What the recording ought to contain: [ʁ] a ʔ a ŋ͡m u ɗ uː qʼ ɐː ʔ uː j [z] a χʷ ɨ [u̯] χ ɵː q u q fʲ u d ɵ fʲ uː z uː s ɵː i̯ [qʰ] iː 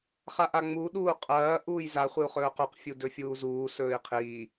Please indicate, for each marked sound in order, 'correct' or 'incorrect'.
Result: incorrect: χ, correct, correct, correct

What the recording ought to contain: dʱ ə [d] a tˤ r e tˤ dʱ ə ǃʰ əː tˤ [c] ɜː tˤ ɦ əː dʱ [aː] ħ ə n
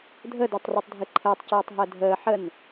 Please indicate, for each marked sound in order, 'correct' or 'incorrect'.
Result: correct, correct, incorrect: əː

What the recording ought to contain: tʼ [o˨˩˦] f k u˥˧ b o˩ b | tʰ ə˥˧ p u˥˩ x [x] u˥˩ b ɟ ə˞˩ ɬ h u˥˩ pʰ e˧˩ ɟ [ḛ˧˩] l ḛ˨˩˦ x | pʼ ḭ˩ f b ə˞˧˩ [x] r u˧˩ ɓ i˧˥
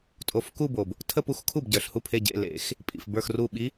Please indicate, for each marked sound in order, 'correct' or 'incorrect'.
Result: incorrect: o˧˩, incorrect: kʰ, correct, correct

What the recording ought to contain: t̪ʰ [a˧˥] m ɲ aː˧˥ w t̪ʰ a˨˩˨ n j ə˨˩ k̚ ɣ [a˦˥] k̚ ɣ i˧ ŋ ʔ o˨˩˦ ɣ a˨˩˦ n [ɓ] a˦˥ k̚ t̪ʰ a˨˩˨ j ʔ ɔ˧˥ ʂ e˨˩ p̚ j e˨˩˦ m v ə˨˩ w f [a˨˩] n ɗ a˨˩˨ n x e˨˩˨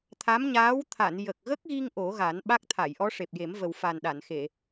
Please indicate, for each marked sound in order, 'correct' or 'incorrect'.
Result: correct, incorrect: ə˦˥, correct, correct

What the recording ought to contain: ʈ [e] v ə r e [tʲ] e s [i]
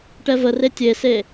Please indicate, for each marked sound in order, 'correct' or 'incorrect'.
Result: incorrect: ɛ, correct, incorrect: e

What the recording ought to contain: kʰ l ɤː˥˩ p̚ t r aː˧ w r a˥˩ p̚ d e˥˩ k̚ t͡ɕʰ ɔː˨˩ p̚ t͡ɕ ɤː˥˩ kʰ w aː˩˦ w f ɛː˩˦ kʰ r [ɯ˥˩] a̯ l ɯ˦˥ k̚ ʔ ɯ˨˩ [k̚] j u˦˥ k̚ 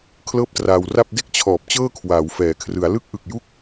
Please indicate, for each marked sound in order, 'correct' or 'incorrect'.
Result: incorrect: ɯ˩˦, correct

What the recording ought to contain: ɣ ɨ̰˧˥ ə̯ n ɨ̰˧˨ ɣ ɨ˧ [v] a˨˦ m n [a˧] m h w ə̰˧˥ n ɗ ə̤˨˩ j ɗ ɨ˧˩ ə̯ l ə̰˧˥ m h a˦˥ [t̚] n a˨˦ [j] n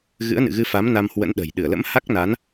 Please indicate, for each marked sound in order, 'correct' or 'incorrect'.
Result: incorrect: f, correct, incorrect: k̚, incorrect: none

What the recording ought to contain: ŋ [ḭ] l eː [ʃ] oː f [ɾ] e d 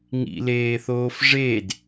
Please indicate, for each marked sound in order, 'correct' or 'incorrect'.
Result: correct, incorrect: θ, incorrect: ʐ

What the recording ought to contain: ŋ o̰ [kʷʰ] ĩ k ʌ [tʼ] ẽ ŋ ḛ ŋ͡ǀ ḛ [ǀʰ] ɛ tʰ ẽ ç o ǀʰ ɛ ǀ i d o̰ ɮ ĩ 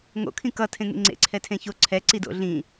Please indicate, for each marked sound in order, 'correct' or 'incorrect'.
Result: incorrect: kʰ, incorrect: tʰ, correct

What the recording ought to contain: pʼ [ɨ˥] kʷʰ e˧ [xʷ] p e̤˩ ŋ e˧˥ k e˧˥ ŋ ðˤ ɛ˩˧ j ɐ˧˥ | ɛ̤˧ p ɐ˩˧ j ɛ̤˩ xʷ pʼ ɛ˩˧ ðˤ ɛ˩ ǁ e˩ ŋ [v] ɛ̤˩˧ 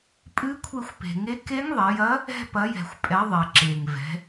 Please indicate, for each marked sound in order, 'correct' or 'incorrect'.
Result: incorrect: ɨ˧˥, correct, correct

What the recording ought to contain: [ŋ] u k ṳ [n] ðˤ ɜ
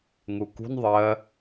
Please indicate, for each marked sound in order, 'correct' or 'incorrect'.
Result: correct, correct

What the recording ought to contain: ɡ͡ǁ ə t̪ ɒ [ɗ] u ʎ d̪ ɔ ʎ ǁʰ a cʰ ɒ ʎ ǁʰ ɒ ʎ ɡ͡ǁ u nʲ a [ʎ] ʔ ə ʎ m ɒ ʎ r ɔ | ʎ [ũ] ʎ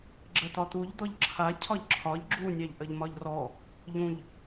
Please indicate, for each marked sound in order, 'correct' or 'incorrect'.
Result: incorrect: t̪, correct, correct

